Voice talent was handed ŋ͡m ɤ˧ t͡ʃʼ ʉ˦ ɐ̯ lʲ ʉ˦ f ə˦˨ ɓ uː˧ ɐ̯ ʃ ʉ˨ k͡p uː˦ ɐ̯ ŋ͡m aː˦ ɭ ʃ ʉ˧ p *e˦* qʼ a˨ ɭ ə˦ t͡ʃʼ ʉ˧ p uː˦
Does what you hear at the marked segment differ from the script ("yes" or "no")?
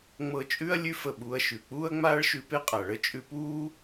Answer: no